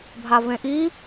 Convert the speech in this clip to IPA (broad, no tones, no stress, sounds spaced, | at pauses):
bʱ a v ẽ ʔ i